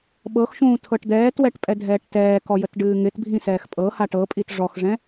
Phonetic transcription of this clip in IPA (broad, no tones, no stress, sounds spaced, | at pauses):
ɓ ɤ x ʃ ũː tʰ ɤ ʈ d̪ ɛː t w ɛ ʈ pʼ ɛ dʱ ɛː ʈ t ɛː k ɔ j ə t ɖ ɨː ŋ ɪ t bʱ ĩ s ɛː x pʼ ɤ h a ʈ ɤ pʼ i t ʐ ɔ x ʐ ɛ̃